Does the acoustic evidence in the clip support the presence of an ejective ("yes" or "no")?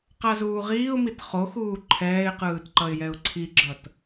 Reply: no